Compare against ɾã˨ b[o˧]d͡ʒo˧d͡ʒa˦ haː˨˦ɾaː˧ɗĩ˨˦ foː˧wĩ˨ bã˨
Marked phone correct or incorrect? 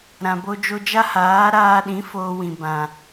correct